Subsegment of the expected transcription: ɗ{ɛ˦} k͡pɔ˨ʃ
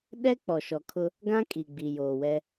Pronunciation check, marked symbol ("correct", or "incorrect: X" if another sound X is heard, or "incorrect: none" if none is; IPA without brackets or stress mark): correct